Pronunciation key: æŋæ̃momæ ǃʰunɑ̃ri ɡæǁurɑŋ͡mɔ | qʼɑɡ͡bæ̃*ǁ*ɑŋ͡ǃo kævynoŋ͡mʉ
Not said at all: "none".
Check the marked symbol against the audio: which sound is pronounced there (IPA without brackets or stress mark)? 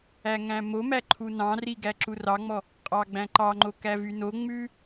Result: ǃ